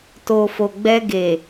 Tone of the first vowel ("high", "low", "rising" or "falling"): low